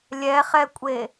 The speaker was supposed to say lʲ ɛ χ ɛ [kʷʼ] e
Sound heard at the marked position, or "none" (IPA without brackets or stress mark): kʷʼ